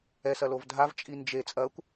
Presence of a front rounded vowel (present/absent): absent